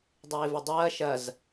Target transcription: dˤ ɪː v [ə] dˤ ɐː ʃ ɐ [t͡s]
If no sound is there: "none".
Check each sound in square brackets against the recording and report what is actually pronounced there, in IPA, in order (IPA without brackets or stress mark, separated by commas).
ʊ, z